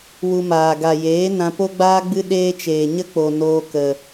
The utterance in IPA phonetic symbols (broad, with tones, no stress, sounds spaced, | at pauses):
w u˧ m aː˨ ɡ a˨ j eː˨˦ n ã˧ p o˦ ɡ͡b aː˦ ɡ͡b ɨ˦ ɗ eː˦ t͡ʃ eː˨ ɲ ə˦ k͡p o˨ n oː˧ k ə˨